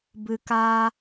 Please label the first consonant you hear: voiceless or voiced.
voiced